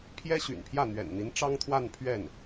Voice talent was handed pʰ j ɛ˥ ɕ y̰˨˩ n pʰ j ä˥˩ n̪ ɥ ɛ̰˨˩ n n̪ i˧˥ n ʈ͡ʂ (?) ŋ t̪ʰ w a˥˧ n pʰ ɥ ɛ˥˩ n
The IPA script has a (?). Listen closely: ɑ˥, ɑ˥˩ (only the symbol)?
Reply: ɑ˥